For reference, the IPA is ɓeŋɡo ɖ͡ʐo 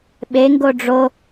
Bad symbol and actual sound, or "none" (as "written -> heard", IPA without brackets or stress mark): none